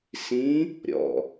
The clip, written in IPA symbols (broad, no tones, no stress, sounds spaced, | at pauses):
s ĩ | ɾʲ ɔ̰